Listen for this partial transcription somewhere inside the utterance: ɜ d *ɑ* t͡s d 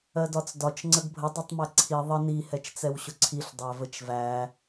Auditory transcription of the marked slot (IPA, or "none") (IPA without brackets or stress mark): ɒ